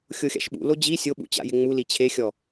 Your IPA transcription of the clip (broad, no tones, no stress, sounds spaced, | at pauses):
xʲ o xʲ a̰ ʃ ɓ ṵ l o d͡ʑ i sʲ o ɓ ṵ t͡ɕ a̰ j ɪ ŋ͡m u l i t͡ɕʰ e xʲ ɔ